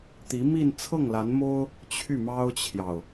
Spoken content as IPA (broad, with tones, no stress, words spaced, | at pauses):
t̪i˧˥mi˥˧n t͡sʰɤ˥˩ŋla˧˥nmo˥ʊ̯ | t͡ɕʰy˥˩mɑ˥ʊ̯t͡ɕʰjɑ˨ʊ̯